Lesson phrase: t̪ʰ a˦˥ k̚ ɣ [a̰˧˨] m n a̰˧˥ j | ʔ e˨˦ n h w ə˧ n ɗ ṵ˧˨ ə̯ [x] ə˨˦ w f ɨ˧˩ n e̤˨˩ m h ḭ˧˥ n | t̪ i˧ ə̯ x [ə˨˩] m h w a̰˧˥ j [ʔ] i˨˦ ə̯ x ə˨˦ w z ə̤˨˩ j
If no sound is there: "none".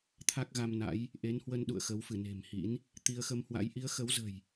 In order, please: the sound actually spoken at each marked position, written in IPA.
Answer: a˧, x, ə˧, ʔ

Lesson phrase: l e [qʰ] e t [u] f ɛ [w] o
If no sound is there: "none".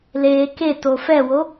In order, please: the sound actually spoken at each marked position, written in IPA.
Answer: k, o, w

